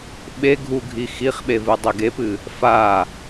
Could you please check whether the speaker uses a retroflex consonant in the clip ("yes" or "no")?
no